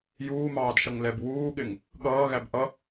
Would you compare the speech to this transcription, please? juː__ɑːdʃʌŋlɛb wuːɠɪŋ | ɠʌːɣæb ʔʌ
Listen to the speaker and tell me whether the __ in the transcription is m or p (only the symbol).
m